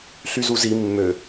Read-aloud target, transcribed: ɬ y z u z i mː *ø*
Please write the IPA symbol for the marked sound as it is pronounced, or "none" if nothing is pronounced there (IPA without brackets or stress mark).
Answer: ø